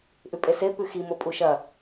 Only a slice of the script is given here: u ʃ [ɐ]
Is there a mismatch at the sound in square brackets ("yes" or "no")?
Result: no